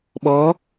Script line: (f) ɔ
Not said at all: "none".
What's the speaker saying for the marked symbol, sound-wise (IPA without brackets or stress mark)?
ɓ